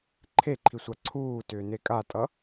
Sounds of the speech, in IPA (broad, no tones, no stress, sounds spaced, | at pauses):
ǃʰ e ǃʰ i sʷ a ǀʰ uː t ʏː n e kʼ a tʼ ʌ